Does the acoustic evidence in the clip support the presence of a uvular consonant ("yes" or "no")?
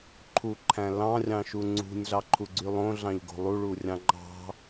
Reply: no